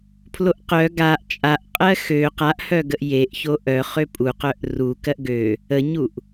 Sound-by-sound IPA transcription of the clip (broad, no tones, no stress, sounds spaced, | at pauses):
pʰ l o ʔ q œ ɡ a ʔ t͡ʃʼ a ʔ qʼ ɜ x ø q a ʔ h œ ɡ ə ʔ j e ʔ ç o ʔ œ χ ø pʼ u q œ ʔ r u k ɜ ʔ ɡ ø | ə ɲ u ʔ